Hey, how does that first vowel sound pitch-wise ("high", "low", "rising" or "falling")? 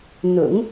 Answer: low